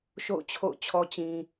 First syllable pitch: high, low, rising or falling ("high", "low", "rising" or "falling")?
falling